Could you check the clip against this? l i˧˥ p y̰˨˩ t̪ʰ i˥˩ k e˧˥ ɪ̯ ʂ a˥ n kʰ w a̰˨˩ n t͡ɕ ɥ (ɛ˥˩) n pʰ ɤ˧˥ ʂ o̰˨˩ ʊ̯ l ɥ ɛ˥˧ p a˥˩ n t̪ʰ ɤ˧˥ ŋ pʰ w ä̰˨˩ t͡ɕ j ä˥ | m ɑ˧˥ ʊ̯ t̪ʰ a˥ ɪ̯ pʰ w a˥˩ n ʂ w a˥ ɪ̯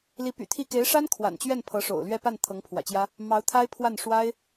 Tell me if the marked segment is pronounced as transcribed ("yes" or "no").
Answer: yes